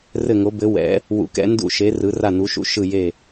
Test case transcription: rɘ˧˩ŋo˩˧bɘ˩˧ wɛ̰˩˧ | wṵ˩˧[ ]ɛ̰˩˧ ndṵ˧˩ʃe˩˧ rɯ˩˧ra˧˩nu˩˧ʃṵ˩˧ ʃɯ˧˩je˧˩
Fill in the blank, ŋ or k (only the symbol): k